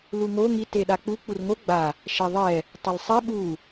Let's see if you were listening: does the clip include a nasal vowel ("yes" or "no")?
no